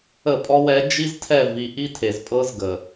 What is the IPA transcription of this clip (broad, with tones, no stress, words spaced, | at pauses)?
ə˦˨pʼɔ˦wɛ˦ d͡ʒi˦ztʰɛ˦˨vi˨ ʔi˦tʰe˨zpʼɤ˦zɡə˨